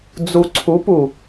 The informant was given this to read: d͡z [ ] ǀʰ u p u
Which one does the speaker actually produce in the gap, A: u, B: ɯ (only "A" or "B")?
A